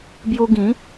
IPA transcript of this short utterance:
b j u˦ ɡ ĩ˨˦

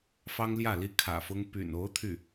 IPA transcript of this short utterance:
f ɑ˥ ŋ l j ä˥˩ l i˥ kʰ ä̰˨˩ f ʊ˥ ŋ p y̰˨˩ n o˧˥ ʊ̯ t̪ʰ y˥˩

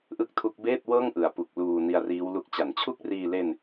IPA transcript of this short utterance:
ʔ ɯ˥˩ k̚ tʰ u˦˥ k̚ b eː˥˩ t̚ w ɤː˥˩ ŋ ʔ ɯ˨˩ a̯ p u˨˩ k̚ l uː˧ n i˧ a̯ r iː˦˥ w l u˦˥ k̚ t͡ɕ a˩˦ n t͡ɕʰ u˥˩ k̚ r iː˧ l e˧ n

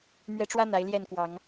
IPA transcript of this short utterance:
m ɥ ɛ˨˦ ʈ͡ʂ w ä˦ n̪ a˨˦ ɪ̯ l j ɛ˥˨ n k w ɑ˨˦ ŋ

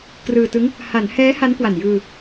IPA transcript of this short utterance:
k r ɯː˧ t ɯ˦˥ ŋ | h a˩˦ n h ɛː˦˥ h a˦˥ n k w a˨˩ n j ɯː˧

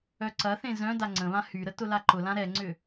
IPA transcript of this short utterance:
œ ǀ ɐ θ ẽ z œ̃ d a ŋ͡ǀ ə̃ β ã h y ɾ ə t ʊ l a ǃ ʊ l ã ɾ ɛ ŋ͡ǀ ʏ

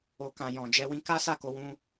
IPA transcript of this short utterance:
o˨ k ã˨ j ɔ̃˨ d͡ʒ ɛ˧ w ĩ˧ k a˦ s a˦˨ k o˧ w ũ˧

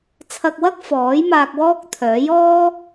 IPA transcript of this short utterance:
t͡sʰ ɐ˧ k̚ w ɐ˥ k̚ f ɔː˨˥ j m aː˧ k̚ w ɔː˥ k̚ t̪ʰ œː˨˥ j ɔː˥

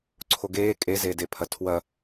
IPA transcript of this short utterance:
ǀʰ o ɡ eː kʼ e z eː d e pʰ ɐ tʰ w ɐ

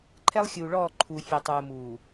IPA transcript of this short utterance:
ǃʰ ɛ˦ lˠ xʲ uː˨ ɭ ɔː˦˨ ǃʰ u˨ fʲ ɛ˨ tˤ uː˨ m uː˨

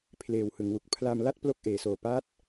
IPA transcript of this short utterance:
pʰ l eː˨˩ w h ɯ˩˦ ŋ w u˨˩ k̚ pʰ l a˧ m l a˥˩ t̚ p l o˥˩ k̚ ʔ eː˩˦ s oː˨˩ p a˦˥ t̚

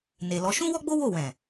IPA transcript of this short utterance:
n e˨ l ɔ˨˦ ʃ ũ˦ w ɔ˦ ɡ͡b o˦ w o˦˨ w ɛ̃˨

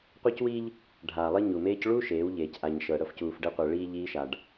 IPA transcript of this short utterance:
qʷ e˦ c w i˦ ʎ | ɖʱ aː˨ lˠ i˦ ɲ u˨ m eː˦ c ɭ u˦ ʃ eː˨˦ w ʎ eː˨ c ʔ a˨ ɲ ʃ ɤ˨ ɽ ɤ˦ f c uː˨ f ɖ e˦ qʷ ɛ˨ ɭ iː˦ ʎ iː˦ ʃ a˨ ɖ

